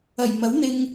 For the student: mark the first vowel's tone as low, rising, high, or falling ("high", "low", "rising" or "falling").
low